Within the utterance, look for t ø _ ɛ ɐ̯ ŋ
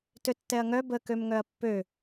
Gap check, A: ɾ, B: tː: B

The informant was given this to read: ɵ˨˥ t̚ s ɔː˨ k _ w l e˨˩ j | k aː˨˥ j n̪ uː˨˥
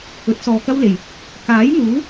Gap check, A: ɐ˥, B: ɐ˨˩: A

